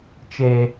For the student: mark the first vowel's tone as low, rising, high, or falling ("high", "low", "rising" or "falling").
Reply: high